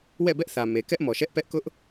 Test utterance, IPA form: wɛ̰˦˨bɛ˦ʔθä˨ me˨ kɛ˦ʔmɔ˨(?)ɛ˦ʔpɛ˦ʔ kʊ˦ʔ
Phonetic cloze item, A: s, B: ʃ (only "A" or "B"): B